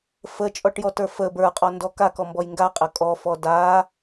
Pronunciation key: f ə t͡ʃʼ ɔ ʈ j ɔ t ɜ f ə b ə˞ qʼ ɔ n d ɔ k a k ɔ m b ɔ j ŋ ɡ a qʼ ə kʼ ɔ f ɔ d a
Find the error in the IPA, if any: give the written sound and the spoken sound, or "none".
ɜ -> ə˞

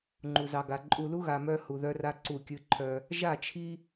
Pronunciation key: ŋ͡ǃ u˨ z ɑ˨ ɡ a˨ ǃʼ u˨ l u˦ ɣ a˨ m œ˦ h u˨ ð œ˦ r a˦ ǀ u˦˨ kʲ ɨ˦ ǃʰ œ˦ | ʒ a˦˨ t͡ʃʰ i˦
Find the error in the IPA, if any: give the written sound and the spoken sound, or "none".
none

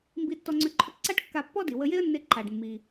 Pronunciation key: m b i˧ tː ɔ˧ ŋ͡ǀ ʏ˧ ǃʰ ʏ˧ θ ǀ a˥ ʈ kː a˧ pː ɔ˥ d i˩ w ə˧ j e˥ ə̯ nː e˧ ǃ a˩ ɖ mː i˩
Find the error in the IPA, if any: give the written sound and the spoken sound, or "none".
θ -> ʈ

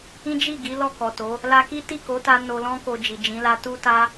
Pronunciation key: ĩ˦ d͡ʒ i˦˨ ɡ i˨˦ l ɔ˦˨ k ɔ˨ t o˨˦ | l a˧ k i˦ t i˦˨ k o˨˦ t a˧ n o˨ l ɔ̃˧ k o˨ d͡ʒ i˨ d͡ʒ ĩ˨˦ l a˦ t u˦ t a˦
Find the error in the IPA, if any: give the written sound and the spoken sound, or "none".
none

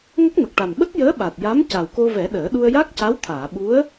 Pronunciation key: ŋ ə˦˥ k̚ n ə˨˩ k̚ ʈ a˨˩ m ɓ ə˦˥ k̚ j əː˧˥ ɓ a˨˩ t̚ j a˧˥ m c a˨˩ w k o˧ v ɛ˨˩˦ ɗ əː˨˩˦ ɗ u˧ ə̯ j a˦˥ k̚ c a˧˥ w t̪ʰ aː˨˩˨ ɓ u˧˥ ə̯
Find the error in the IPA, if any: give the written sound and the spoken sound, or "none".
none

